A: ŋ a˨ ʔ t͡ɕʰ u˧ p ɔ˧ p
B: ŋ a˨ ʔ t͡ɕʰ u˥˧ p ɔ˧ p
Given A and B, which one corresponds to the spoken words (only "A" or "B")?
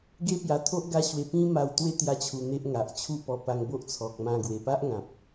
B